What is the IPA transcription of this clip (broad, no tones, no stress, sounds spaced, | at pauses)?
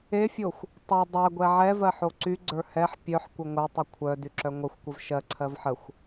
e fʲ o xʷ | tˤ ɛ dˤ ɜ ɡʷ ɛ ʕ ɛ v ɜ ħ o ǀ y ɡ͡ǀ ə˞ h ɛ ħ pʲ œ ħ kʷ ə ŋʷ œ tˤ u kʷʰ œ d y ǁ œ ŋʷ ə xʷ kʷ ə v ʃ ɜ ǀʰ ɜ v ħ ə xʷ